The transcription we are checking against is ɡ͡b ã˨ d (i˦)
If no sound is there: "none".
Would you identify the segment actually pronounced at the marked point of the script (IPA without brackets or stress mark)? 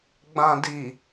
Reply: i˨